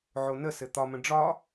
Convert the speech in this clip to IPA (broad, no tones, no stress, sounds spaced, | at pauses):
ʕ o n ə s ɘ t̪ ɒ m ə̃ ɖ͡ʐ ɒ